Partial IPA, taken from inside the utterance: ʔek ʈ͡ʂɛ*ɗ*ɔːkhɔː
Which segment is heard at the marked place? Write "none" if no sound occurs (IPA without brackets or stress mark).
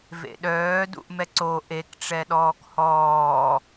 ɗ